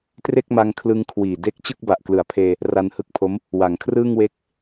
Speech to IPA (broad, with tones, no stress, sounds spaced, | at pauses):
t r e˥˩ k̚ m a˧ ŋ kʰ l ɯ˧ ŋ kʰ w iː˨˩ d e˦˥ k̚ t͡ɕ ɯ˥˩ k̚ b a˨˩ ʔ k l ɯ˩˦ a̯ pʰ eː˧ | r a˧ n h ɯ˦˥ k̚ pʰ o˦˥ m | w a˨˩ ŋ kʰ r ɯː˥˩ ŋ w e˥˩ k̚